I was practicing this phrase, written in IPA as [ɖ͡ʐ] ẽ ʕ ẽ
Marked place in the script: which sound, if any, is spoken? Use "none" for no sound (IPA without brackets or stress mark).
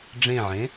ɖ͡ʐ